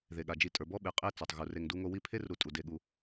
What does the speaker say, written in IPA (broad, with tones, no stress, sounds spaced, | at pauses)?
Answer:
ð e˩ ɠ a˩ d͡ʒ i˨ tʼ ə˞˩ b ɔ˥ ɓ e˨ qʼ e˦ t͡s ɔ˩ tˤ ɣ u˩ r e˨ ŋ d u˦ ŋ o˦ w i˦ pʰ e˥ r ɾ u˨ tʼ u˩ d e˨ ɠ u˨